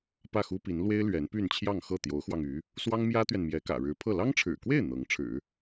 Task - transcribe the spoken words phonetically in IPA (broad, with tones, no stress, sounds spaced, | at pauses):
p ä˥˩ x u˥ p i˧˥ n l w e˥ ɪ̯ l ɥ ɛ˧˥ n p y˥˧ n t͡ɕʰ j ɑ˥˧ ŋ x ɤ˥˩ t̪ j o˧˥ ʊ̯ x w ɑ˧ ŋ y˧˥ | s w ɑ˥ ŋ m j ä˥ t̪ ɥ ɛ˨ n m j ɛ˧˥ k ä̰˨˩ ɻ ɻ̩˧˥ pʰ ɤ˥˩ l ɑ˥ ŋ ʈ͡ʂʰ ɻ̩˨˩ k w e˥˩ ɪ̯ n̪ ɤ˧˥ ŋ ʈ͡ʂʰ ɻ̩˨˩˦